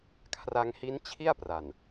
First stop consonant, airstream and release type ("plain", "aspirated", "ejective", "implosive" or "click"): aspirated